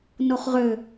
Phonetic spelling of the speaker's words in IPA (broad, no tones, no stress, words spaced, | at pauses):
noχʁø